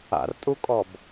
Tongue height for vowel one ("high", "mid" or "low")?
low